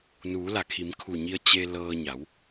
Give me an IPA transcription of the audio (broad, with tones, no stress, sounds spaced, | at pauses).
n uː˩˧ l a˩ kʰ i˩˧ m kʰ u˧˩ ɲ i˧ ə̯ t͡ɕ e˧ l ɤː˧ ɲ a˩˧ w